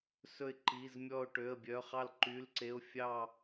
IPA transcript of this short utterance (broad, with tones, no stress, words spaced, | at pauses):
sɵ˧˩ɪ̯ǃi˩˧˩zmʲɔ˧˩ʊ̯ ʈø˩˧˩ə̯bʲœ˩˧˩χɑ˧˩l ǃy˩˧˩lǀe˩˧˩ʊ̯fʲɑ˧˩